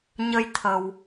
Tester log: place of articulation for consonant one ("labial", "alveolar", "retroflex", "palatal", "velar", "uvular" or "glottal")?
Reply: palatal